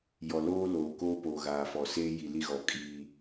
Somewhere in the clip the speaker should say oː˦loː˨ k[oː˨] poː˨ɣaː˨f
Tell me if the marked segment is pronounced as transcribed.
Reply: no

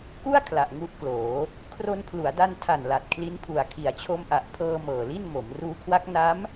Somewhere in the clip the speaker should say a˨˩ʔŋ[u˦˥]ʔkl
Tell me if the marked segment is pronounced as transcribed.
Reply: yes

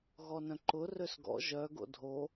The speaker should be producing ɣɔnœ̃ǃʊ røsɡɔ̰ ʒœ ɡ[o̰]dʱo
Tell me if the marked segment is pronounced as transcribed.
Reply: yes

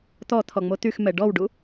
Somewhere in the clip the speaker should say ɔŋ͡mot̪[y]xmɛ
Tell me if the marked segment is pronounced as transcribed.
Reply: yes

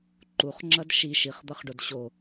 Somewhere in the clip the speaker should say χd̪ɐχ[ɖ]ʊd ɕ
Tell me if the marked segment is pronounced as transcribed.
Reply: yes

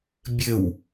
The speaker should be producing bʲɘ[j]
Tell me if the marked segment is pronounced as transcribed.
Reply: no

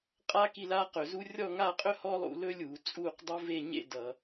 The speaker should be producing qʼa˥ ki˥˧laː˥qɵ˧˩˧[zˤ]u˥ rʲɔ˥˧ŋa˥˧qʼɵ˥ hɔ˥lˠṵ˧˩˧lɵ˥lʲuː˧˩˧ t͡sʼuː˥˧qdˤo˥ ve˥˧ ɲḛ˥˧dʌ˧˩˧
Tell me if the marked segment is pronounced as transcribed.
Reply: no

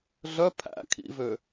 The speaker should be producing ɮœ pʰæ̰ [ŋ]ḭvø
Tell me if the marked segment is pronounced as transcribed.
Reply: no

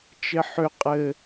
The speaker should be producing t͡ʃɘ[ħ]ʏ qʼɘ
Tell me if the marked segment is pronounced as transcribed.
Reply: yes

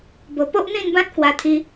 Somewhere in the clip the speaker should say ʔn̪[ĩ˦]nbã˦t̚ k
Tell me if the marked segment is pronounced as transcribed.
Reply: no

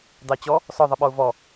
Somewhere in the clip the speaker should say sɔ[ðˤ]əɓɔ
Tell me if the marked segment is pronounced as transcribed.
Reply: yes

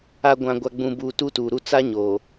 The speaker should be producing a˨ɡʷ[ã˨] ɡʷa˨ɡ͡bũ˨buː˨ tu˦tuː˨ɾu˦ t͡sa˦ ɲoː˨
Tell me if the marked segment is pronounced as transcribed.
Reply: yes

